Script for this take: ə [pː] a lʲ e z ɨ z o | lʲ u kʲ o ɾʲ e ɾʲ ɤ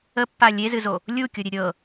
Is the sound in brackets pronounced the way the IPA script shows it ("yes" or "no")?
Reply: yes